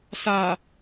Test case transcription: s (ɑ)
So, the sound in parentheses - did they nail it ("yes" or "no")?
no